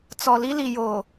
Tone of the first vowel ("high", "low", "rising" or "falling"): low